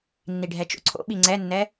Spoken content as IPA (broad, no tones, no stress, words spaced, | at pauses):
nːiɖʱɛt͡ʃo̰ǀʰo̰ ɓiŋ͡ǀɛnːɛ